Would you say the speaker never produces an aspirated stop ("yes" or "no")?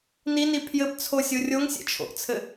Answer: no